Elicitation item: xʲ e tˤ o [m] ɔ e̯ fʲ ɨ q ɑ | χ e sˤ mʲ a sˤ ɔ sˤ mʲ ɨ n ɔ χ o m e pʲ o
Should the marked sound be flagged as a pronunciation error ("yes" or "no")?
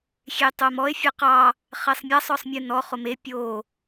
no